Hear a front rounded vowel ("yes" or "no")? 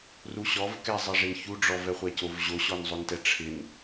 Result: no